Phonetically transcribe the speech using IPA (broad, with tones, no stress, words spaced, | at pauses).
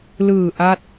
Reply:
lɯː˨˩ ʔa˥˩t̚